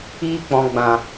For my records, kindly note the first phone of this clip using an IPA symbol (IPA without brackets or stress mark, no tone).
iː